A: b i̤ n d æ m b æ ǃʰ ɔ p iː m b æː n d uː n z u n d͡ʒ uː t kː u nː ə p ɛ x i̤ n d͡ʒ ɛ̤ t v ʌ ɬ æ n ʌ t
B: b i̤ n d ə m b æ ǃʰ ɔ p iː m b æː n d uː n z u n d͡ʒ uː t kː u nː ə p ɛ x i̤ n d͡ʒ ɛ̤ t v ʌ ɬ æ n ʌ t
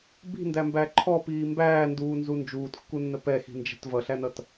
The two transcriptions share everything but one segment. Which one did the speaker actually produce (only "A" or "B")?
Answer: A